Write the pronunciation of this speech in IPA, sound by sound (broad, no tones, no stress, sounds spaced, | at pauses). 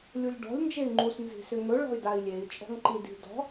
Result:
lʲ u lʲ ɖ ɔ̤ lʲ n d͡ʒ e y̯ ŋ͡ǃ u s n z i̤ s ʏ ŋ ɵ ɭ ɔ̤ y̯ d a i̯ lʲ e i̯ t͡ʃʼ ɔ̤ ŋ ǃ i d i̤ d ɔ̤